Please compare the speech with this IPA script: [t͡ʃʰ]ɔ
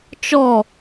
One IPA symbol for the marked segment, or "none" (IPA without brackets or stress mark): t͡ʃ